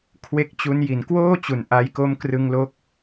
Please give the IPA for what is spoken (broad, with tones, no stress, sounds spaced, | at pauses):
kʰ w e˦˥ k̚ t͡ɕ u˦˥ n j i˩˦ n k w oː˥˩ t͡ɕ u˨˩ n ʔ a˧ j k o˦˥ m k r ɯ˧ ŋ l o˦˥ k̚